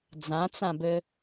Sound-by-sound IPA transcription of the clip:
d͡z ã t͡s ã b ɘ

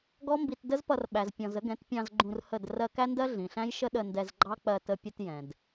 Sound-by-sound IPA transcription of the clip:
ɡ ɔ˦ m b i˧ t d ə˦ z p ʌ˧ r ɓ æ˨ z pʲ ɔ̃˨ z ə˨˦ ɡ ɛ̃˨˦ t pʲ ɑ̃˧ z ɡ͡ǃ ũ˧ r h ə˦˨ d r ɜ˧ k æ˦ n d ɜ˦ ɮ ĩ˨ ɬ æ̃˦ j ʃ ə˦ ɗ ə˧ n d ɛ˧ z ɡ͡ǃ ɑ˦ k͡p ɜ˧ t ə˦ pʲ ə˦ t j ɛ̃˨ d

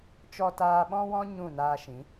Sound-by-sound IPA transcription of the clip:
t͡ʃ ɔ˧ t aː˧ ɓ ɔ̃˦ w ɔ̃˦ ɲ ũ˦˨ n aː˧ ʃ ĩ˨˦

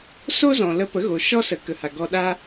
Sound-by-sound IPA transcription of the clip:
s o˦ z ɔ̃˨ l ə˧ p ə˨˦ ɣ o˨ ʃ ɔ˦ s ə˨˦ k ə˨ h a˨ ɡ ɔ˧ ɗ a˦

